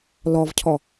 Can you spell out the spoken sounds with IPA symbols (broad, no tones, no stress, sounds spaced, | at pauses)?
l ɔ v cʰ ɔ